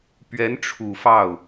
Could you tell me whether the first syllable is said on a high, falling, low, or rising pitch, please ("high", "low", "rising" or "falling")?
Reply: rising